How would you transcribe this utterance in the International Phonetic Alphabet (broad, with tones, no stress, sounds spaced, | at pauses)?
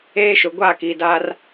eː˦ ʃ ʊ˨ ɡʷ a˦˨ k i˨ d a˦ r